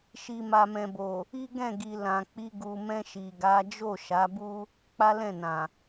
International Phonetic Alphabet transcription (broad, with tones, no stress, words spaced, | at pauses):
ʃi˨ma˨mɛ̃˨bo˨ | i˦ɡɛ̃˦˨ɡi˨ lã˨k͡pi˧ ɡu˨mɛ̃˧ ʃi˨ɡa˨˦ d͡ʒo˦˨ʃa˨˦bu˦ | k͡pa˦lɛ̃˦˨nã˨